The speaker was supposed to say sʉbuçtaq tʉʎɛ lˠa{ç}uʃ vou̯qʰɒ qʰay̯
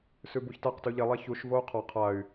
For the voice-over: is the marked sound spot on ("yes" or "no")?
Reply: yes